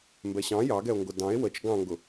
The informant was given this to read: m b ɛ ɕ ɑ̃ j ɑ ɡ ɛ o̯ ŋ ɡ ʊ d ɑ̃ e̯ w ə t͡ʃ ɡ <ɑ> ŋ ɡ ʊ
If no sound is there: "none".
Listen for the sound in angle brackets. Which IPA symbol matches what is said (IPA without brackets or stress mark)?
ɑ̃